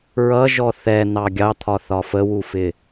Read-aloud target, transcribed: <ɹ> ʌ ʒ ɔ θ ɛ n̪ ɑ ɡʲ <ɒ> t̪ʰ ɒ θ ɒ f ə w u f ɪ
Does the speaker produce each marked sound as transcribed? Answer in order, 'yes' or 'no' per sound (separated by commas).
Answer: yes, no